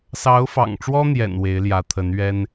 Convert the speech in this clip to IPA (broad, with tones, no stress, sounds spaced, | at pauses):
s ɑ˧˥ ʊ̯ f ɑ̰˨˩ ŋ ʈ͡ʂ w ɔ˥ n̪ j ɛ̰˨˩ n w e˧˥ ɪ̯ l j ä˧˥ t̪ʰ ə˧˥ n ɥ ɛ˥ n